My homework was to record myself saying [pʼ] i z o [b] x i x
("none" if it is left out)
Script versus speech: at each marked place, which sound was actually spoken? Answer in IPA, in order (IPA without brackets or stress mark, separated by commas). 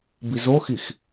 b, none